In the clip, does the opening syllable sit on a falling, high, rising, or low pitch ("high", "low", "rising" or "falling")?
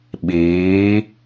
rising